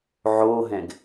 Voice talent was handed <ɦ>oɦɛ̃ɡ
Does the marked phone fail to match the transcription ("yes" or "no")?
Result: yes